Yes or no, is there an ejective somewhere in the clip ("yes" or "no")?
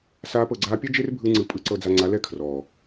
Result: yes